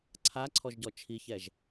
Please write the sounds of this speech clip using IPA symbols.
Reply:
ǀʰ a ǀʰ ɔ ʒ ɟ ɔ t͡ʃʰ i ç ɛ ʒ

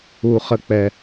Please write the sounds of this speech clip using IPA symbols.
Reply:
u˨ χ ə˨ k͡p ɛ˨

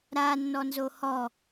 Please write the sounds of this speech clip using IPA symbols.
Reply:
ɾ a nː ɔ n z o h ɔ

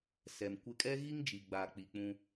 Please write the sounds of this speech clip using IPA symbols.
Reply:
s ɛ˨ m kʷ ɪ˦ kʼ ɛ˦ ɣ i˦ ŋ d͡ʒ i˨ ɡ͡b a˨ k͡p i˦ k͡p ũ˦

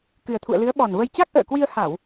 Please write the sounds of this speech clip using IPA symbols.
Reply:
k ɨ˨˩ ə̯ t̪ʰ ṵ˧˨ ə̯ l ɨ˨˦ ə̯ ɓ ɔ˨˩ n v ə˧ j t͡ɕ a˦˥ k̚ ʔ ə̰ː˧˨ k w i˧ ə̯ h a˧˩˨ w

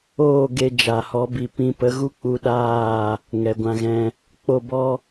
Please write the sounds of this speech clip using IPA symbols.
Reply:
oː˦˨ ɡ e˧ d͡ʒ a˨ h ɔ˨˦ b i˨ p ĩ˧ p ə˨˦ ɣ u˦ k͡p u˧ ɗ aː˦˨ | ŋ ɛ˨ ɡʷ ã˧ ɣ ɛ̃˧ | k͡p o˦˨ b ɔ˦

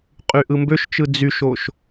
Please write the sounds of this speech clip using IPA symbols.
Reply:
qʼ y ʔ ɯ m b ø ʃ t͡ʃ ɯ d͡z y ʃ o ʃ

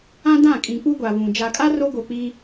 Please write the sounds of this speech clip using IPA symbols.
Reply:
ã˦ d ã˦˨ kʼ ĩ˨ k͡p u˦ ɡʷ a˨ β ũ˨ d͡ʒ a˨ kʼ a˦ r o˦ ɡ o˨ k͡p i˦

